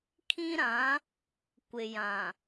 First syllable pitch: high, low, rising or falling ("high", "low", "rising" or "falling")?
high